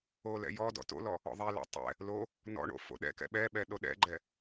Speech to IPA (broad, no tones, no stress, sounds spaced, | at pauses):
o l ɛ̰ j ɔ d ɔ̰ t o̰ l ɔ | ɔ̰ ðˤ ɛ l ɔ̰ tˤ ɛ̰ | l o | n ɔ̰ ɳ o̰ f o̰ ɗ ɛ̰ k ɛ̰ ɓ ɛ ɓ ɛ ɗ o ɗ ɛ̰ ɡ͡ǃ ɛ